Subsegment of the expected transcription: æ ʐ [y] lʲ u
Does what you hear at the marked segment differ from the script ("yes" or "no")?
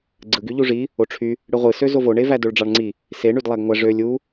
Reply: yes